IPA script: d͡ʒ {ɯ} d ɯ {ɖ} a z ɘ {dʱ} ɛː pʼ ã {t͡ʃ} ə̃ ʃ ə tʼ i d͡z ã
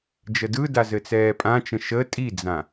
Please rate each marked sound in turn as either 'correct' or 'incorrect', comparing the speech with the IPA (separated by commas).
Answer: incorrect, incorrect, incorrect, correct